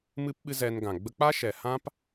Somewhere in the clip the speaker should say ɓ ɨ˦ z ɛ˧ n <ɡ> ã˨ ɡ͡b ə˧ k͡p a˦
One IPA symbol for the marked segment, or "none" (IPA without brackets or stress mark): ɡ